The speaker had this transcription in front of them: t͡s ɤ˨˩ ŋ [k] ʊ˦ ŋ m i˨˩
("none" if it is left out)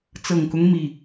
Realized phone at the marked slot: k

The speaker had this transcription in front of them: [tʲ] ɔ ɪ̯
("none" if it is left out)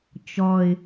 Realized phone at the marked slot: t͡ʃ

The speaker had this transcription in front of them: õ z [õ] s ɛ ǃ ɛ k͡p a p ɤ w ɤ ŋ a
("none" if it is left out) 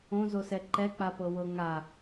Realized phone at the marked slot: o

